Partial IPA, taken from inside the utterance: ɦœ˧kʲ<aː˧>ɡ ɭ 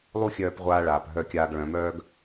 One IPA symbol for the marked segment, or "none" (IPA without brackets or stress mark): aː˧